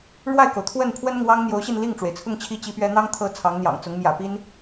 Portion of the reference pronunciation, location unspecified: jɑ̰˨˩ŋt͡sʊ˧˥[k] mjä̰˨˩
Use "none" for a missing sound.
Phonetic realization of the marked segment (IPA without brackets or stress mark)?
ŋ